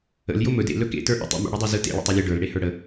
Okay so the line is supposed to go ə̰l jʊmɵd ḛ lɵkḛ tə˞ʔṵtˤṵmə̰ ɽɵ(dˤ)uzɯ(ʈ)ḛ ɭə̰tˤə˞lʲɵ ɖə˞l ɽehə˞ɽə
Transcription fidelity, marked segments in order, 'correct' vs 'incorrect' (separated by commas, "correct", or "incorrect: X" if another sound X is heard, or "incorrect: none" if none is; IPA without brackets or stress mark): correct, incorrect: t